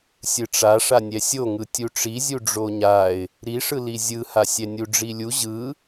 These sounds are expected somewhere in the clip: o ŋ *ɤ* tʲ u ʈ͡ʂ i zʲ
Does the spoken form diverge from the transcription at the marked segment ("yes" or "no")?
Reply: yes